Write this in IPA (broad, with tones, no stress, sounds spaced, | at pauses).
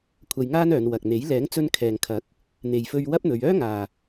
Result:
kʷʰ ɐ˧ j ŋ aː˥ n œː˨˧ n w ɐ˨ k̚ n̪ e˨˥ j l ɛː˨˥ ŋ t͡s ɵ˧ n kʰ ɛː˨ ŋ kʰ ɐ˨˥ k̚ | n̪ e˨ j f ɵ˧ ɥ w ɐ˥ p̚ n̪ ɵ˨˧ ɥ œː˥ ŋ aː˨